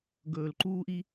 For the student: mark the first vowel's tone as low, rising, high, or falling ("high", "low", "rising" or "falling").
low